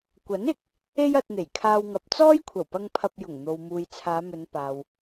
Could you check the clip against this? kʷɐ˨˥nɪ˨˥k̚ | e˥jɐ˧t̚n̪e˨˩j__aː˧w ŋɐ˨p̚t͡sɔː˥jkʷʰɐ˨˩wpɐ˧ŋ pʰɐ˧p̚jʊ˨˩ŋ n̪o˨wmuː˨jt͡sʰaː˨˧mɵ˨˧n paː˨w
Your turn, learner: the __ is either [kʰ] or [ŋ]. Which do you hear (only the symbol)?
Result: kʰ